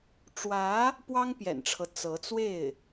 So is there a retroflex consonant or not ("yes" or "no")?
yes